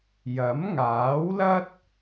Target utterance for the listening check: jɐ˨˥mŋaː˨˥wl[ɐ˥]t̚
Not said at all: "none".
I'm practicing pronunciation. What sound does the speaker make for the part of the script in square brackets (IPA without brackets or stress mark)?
ɐ˥